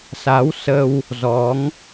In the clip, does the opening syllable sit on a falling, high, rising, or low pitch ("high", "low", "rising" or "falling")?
rising